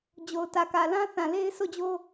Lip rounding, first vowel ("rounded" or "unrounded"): rounded